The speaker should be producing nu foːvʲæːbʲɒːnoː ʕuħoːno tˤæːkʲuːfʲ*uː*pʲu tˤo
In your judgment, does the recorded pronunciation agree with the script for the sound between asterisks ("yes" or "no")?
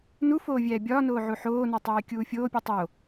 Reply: no